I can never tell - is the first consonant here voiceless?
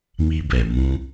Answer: no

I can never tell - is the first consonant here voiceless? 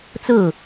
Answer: yes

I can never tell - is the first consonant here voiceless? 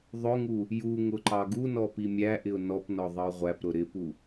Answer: no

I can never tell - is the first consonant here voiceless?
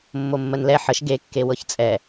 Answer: no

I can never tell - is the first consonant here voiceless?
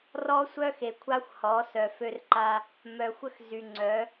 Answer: no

